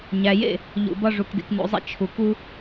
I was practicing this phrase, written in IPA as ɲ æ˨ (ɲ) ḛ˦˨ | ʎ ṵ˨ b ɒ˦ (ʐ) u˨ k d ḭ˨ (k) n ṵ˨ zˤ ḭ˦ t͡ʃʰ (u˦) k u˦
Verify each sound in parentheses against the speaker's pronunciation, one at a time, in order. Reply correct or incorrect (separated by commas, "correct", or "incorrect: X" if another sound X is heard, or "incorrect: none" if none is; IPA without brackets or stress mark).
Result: incorrect: j, correct, correct, incorrect: u˨